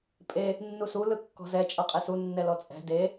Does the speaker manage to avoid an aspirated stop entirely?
yes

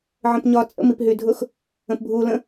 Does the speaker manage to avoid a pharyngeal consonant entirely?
no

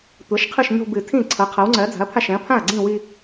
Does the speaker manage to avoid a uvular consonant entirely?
no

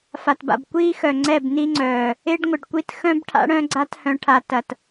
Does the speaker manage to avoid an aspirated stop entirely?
no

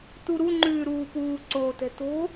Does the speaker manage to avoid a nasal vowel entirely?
yes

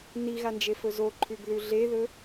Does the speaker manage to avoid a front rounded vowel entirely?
yes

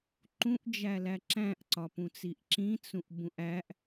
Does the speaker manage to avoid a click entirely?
no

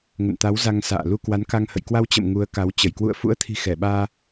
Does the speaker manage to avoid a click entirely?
yes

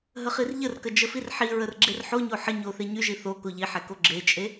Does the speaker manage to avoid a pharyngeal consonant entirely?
no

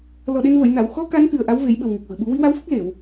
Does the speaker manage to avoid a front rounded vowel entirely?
yes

